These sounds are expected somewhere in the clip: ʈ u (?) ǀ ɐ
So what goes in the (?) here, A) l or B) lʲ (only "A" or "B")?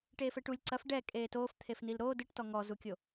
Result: B